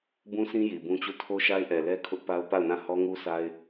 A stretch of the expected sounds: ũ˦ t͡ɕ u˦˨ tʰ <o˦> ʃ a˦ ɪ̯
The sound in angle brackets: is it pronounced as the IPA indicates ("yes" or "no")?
yes